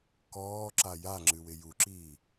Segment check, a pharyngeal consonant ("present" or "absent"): absent